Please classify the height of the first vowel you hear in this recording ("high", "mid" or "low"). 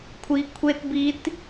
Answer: high